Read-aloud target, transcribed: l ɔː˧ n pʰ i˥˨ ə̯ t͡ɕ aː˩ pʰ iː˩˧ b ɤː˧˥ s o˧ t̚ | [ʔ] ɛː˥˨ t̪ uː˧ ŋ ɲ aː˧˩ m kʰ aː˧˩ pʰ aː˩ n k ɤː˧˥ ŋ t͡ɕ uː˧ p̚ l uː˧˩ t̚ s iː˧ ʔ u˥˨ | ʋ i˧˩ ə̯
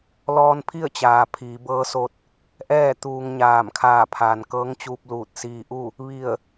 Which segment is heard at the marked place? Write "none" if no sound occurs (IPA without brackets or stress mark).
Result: ʔ